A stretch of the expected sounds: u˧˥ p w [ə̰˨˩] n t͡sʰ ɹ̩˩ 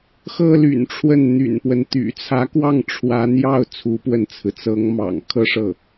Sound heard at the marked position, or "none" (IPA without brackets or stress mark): ə˥˩